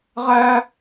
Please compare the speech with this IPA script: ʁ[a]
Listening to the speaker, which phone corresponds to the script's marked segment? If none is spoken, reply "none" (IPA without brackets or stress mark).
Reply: æ